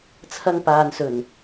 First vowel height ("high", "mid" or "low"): low